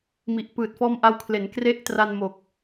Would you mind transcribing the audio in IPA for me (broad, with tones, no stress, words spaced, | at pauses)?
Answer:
mi˨˩ʔpɯː˨˩t̚fɔː˦˥m ʔa˧wkʰle˩˦n kre˥˩ʔ tra˧nmo˨˩k̚